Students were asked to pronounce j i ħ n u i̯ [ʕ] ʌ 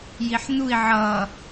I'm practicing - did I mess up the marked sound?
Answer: no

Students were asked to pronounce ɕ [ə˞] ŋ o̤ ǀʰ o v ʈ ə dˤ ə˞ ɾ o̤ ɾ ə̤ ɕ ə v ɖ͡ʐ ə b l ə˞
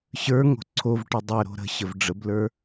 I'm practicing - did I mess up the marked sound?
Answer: no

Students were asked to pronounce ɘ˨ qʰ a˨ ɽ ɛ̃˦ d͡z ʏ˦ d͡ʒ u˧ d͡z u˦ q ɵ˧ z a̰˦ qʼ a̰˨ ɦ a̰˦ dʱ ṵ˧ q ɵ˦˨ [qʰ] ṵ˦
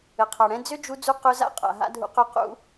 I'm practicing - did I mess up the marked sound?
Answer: yes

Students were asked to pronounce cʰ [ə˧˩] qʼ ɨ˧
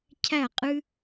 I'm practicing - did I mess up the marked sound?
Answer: yes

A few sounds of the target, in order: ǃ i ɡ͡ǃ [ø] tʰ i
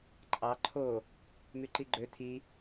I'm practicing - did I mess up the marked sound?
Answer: no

